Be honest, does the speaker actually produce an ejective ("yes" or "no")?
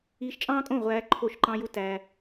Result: yes